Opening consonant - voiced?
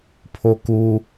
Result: no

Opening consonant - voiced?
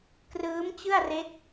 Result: no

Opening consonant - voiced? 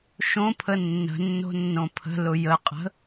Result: no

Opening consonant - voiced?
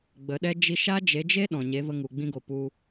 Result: yes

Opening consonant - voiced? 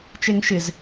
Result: no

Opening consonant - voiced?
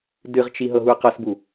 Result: yes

